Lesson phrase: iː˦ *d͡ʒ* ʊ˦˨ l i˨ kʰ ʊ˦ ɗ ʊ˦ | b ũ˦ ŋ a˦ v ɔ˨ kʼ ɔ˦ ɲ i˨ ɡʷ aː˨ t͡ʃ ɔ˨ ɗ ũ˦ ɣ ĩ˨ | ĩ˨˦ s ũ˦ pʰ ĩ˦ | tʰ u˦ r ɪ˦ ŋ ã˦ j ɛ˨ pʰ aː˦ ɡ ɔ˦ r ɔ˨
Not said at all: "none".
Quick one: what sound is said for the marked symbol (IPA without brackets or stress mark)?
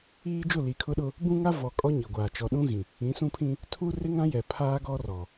d͡ʒ